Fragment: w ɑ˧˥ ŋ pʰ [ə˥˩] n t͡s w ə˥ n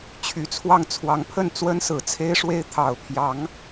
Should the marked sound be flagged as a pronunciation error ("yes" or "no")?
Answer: no